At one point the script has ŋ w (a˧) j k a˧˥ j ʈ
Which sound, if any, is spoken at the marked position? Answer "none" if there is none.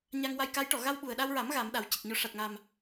a˧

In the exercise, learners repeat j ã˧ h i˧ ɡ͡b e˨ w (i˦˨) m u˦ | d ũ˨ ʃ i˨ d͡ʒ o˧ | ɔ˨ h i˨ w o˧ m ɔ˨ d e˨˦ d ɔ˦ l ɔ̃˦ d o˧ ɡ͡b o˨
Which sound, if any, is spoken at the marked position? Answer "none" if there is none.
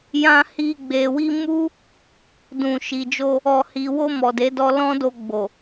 i˧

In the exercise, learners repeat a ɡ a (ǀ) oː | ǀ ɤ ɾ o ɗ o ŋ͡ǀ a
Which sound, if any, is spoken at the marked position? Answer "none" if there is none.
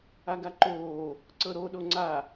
ǃ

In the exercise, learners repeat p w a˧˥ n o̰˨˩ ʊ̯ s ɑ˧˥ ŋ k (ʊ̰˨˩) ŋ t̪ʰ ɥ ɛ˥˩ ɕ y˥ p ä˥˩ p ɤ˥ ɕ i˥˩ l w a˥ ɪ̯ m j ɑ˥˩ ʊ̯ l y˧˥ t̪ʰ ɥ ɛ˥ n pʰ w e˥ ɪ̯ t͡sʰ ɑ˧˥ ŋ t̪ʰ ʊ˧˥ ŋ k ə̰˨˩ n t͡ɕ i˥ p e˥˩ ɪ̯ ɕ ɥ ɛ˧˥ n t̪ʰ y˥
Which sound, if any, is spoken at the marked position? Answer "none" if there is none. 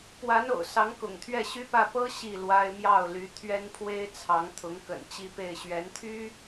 ʊ̰˨˩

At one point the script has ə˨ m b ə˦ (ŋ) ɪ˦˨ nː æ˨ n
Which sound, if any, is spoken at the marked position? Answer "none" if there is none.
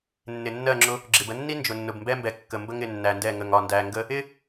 ŋ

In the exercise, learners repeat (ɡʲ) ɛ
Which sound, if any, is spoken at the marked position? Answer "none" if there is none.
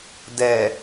d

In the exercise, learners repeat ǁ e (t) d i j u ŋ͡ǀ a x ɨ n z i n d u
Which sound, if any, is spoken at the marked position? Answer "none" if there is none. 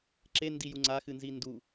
n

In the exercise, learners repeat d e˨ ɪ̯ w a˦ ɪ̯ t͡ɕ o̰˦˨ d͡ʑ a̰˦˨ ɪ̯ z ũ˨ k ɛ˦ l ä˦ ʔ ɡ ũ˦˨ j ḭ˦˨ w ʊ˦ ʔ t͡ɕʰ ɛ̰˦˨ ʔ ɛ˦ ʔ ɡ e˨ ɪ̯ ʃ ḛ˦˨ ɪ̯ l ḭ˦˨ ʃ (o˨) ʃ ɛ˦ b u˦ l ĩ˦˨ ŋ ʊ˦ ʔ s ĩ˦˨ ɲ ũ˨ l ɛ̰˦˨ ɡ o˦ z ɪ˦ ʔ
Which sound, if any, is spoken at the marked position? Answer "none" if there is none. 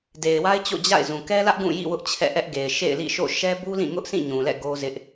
o̰˦˨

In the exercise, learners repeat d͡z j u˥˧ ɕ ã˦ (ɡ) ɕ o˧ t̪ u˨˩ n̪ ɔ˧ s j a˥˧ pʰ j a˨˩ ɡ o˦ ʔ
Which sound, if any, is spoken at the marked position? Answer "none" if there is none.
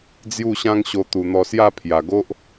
ŋ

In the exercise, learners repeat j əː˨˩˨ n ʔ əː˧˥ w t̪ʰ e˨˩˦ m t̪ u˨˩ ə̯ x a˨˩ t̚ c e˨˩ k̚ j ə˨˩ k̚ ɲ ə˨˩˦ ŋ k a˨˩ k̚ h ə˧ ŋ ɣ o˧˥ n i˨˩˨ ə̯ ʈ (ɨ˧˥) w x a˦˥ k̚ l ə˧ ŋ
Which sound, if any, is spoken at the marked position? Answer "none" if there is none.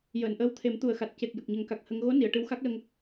ɨ˧˥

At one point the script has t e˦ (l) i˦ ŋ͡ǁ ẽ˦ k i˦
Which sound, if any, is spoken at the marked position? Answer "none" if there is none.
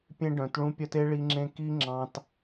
ɭ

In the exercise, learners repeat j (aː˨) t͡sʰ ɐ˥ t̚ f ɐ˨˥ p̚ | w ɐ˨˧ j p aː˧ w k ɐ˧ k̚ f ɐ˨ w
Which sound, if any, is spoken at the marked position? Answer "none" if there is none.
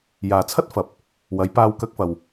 aː˨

